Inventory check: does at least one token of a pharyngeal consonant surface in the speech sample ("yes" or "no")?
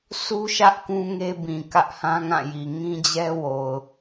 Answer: no